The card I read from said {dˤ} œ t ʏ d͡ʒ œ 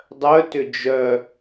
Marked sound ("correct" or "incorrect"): correct